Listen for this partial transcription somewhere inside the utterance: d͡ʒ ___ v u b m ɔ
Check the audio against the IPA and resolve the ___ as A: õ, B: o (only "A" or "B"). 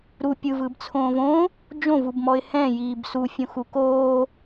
A